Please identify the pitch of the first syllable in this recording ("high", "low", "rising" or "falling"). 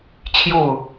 falling